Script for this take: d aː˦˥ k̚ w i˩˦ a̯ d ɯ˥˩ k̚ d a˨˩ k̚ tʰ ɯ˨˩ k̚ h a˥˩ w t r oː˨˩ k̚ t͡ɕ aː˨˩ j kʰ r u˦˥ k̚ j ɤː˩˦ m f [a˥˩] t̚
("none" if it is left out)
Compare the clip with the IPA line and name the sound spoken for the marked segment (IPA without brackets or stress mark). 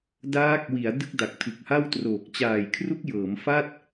a˥˩